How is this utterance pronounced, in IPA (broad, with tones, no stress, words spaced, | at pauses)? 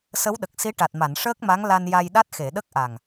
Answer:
sə˧˥wɗə˨˩k̚si˧˥ ʈa˨˩t̚ma˨˩˨nʂəː˦˥k̚ma˧˥ŋ la˧nja˧jɗa˦˥t̚ xe˨˩˨ɗə˦˥k̚ʔa˨˩ŋ